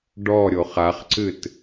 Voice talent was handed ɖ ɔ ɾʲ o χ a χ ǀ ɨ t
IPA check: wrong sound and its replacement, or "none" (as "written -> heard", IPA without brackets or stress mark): none